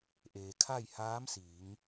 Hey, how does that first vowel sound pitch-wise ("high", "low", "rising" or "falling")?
low